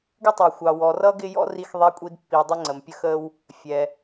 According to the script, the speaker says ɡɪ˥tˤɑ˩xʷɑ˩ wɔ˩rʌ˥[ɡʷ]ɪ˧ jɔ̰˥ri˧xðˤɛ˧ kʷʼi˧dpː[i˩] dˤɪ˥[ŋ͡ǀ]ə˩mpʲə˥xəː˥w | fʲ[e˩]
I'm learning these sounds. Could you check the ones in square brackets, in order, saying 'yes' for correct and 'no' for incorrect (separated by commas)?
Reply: no, yes, yes, no